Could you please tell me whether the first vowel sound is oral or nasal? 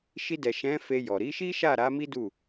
oral